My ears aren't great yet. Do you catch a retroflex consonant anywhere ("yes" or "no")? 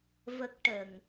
yes